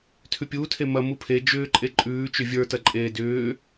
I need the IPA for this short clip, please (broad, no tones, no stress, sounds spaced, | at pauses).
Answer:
tʰ ʉ pʲ uː tʰ e m ɐ m u pʰ e d͡ʒ ʏː ǃʼ e ǃʼ ʉː t͡ʃ ʏ vʲ ə˞ t ɐ ǃʼ eː d ʏː